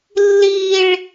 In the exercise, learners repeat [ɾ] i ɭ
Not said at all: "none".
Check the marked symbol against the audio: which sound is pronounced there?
lː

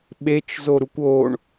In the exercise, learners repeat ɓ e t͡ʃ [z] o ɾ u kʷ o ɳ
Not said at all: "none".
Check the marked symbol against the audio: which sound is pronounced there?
z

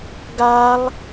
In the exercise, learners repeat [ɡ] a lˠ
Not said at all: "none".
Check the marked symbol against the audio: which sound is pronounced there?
ɡ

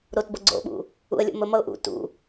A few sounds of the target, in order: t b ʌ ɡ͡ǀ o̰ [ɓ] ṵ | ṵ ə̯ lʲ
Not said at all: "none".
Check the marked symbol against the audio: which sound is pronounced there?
ɓ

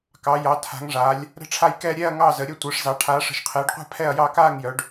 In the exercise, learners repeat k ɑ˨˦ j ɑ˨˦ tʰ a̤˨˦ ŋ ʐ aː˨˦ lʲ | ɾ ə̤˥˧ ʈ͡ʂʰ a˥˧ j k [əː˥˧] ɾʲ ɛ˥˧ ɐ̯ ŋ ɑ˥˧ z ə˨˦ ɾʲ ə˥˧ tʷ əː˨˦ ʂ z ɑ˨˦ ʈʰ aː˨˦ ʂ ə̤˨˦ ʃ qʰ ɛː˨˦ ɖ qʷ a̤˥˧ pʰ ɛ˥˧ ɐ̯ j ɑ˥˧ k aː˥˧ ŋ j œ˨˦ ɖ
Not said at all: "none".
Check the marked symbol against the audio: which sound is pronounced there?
ɛː˥˧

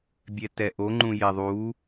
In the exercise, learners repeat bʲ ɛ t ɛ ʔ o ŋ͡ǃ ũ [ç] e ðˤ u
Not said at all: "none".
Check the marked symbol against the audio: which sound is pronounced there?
j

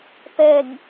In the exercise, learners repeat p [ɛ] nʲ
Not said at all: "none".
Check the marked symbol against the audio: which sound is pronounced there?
ɛ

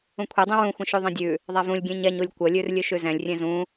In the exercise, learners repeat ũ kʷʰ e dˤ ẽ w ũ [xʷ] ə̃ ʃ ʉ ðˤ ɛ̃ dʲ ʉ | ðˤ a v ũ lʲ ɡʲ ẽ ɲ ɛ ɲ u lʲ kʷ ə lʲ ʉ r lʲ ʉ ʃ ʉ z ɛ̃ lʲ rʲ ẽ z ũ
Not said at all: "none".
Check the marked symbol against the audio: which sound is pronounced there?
xʷ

